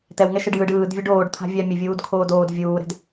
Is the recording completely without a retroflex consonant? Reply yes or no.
no